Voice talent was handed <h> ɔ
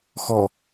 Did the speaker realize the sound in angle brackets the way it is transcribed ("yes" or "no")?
no